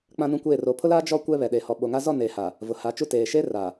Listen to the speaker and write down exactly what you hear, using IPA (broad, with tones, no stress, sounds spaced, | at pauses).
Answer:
k͡p ã˦ n ũ˦ kʷ eː˦˨ r o˨ pʰ ʊ˦ l aː˦ d͡ʒ ɔ˦ kʷ ɛ˦ β ɛ˨ ɗ e˨ h ɔ˨ ɓ o˨ ŋ a˦ z ɔ˦˨ n eː˨ h a˨ | v ʊ˨ h a˨˦ t͡ʃ u˦ t eː˨ ʃ e˦ r a˨